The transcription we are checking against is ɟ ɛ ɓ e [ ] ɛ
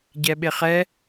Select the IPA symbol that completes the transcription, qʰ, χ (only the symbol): χ